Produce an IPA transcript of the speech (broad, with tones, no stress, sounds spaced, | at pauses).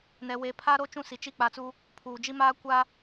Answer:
n ɛ˨ w e˨˦ pʰ aː˦ ɾ o˦ t͡ʃ ũ˦ s i˨ t͡ʃ i˦˨ k͡p a˨ t͡s u˦ | pʰ uː˨ d͡ʒ i˦ m aː˦ kʷ a˦